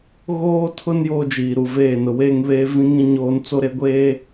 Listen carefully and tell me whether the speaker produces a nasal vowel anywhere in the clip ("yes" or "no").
yes